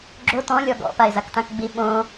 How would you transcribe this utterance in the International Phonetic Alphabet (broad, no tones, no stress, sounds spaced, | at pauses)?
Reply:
ɡ͡ǁ o t ɔ̃ lʲ ɔ ɡ ɔ̰ p a e̯ z a k t ã k ɡ͡b i ɓ õ